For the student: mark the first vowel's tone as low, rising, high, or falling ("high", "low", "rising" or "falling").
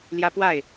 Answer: high